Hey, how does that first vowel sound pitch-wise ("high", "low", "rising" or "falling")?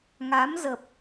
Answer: rising